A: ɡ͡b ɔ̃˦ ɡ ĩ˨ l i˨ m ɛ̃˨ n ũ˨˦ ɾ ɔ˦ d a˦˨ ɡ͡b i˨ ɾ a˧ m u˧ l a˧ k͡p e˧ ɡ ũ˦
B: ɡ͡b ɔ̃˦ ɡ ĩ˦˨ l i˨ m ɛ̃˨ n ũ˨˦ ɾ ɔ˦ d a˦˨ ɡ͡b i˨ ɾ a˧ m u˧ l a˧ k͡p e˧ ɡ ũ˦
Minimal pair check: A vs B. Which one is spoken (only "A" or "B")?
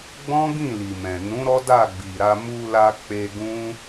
B